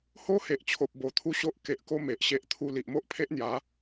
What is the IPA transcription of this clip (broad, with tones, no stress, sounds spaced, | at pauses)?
h o˦ h e˨ ʔ t͡ɕʰ o˨ p̚ b o˨˩ t̪ʰ u˦ ɕ o˦ ʔ k e˨ ʔ k o˦ m e˨ ʔ ɕ e˦ ʔ t̪ʰ u˥˧ l i˨ ʔ m o˦ ʔ pʰ e˦ ʔ n̪ j a˨˦